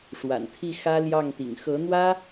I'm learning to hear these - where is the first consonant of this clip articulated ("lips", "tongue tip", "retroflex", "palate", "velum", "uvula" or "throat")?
retroflex